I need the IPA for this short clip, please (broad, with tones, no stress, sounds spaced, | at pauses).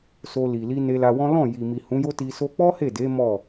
s o˧ l i˨ l i˧ n e˧ l a˧ w ɔ̃˦ l ɔ̃˦˨ j i˨ m i˨ h ũ˨˦ j o˦ t i˧ s o˧ k͡p ɔ˦ h e˦˨ d e˨˦ m ɔ˦˨